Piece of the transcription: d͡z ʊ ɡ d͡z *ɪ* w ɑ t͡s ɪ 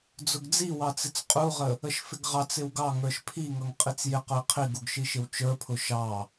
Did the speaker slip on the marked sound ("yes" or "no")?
yes